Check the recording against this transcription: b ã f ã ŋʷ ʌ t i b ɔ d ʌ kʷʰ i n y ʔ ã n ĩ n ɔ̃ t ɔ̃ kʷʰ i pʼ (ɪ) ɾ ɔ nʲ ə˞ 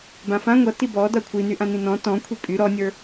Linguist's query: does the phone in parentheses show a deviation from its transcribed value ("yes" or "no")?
yes